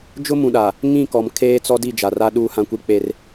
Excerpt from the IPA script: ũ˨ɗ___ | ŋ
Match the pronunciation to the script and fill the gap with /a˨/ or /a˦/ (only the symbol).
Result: a˨